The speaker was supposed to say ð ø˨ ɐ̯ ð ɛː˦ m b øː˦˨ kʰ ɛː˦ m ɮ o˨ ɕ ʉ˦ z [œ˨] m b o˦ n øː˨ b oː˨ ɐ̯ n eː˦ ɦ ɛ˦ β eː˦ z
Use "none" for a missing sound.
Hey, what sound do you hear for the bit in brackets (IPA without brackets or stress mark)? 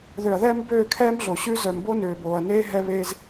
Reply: œ˨